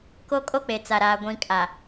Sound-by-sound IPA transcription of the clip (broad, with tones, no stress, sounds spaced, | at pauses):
k o˦ kʼ o˦ k͡p e˨ t͡s a˨ ɾ aː˨ ɡʷ ĩ˨ kʼ a˨